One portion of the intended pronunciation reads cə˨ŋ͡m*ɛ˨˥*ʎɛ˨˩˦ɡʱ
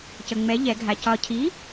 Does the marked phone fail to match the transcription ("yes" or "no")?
no